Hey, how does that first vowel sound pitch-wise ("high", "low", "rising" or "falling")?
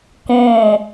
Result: falling